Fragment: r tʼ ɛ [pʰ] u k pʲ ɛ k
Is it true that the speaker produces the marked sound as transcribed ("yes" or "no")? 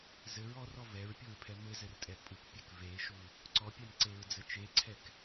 no